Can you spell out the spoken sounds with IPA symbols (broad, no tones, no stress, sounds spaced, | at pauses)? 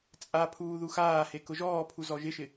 t͡sʼ a pʰ uː ð u x aː h e k ʊ ʒ ɔː pʰ u z ɔ ʒ ɪ ʃ ɪ